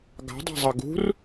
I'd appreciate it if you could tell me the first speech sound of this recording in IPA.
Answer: ɡ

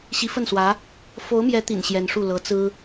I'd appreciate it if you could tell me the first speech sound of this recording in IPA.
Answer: ɕ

